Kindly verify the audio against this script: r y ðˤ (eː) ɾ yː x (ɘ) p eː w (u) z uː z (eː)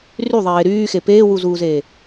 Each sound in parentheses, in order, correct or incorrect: correct, incorrect, correct, correct

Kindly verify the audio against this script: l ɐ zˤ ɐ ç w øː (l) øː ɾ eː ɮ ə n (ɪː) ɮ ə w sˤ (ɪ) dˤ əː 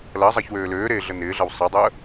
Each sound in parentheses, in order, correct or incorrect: correct, correct, correct

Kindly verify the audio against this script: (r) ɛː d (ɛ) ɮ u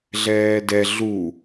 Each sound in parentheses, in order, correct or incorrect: incorrect, correct

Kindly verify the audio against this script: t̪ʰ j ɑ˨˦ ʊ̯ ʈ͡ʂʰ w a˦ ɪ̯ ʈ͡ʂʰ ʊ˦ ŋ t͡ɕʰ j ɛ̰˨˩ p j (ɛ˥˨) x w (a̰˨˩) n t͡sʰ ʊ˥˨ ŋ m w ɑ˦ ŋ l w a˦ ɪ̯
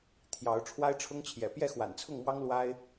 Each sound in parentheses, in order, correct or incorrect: correct, correct

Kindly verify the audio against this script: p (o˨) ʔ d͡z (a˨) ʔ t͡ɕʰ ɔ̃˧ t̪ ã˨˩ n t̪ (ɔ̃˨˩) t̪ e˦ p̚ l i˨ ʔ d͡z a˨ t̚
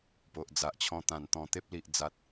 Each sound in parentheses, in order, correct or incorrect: correct, correct, correct

